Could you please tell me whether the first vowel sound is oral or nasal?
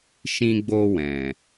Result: nasal